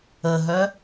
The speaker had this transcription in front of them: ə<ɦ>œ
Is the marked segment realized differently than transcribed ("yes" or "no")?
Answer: no